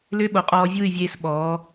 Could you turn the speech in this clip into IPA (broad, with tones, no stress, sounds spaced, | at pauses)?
l ʏː˦ ɓ o˨˦ qʼ ɔː˧ vʲ u˦˨ y̯ vʲ eː˧ s ɓ ɔː˨˦